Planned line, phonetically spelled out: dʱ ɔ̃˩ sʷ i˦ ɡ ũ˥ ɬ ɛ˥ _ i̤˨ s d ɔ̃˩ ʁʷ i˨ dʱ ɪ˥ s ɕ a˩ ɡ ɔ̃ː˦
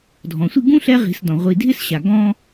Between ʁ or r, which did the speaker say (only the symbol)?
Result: ʁ